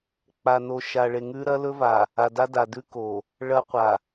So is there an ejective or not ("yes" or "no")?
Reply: no